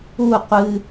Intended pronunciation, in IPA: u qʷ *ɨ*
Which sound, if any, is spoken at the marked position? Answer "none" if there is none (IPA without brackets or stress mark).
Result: ɨ